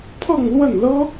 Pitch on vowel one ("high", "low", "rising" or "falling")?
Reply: falling